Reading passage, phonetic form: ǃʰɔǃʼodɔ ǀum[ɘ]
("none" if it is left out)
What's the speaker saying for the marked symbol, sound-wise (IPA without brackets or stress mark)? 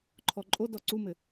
ɘ